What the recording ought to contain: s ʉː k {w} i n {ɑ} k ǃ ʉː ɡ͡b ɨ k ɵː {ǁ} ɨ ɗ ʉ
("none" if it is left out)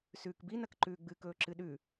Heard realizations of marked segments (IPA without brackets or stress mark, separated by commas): b, ɐ, ǁ